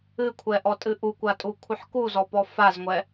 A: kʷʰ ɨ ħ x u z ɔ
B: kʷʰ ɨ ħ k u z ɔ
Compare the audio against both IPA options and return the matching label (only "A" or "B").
B